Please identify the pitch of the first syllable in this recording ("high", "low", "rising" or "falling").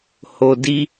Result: low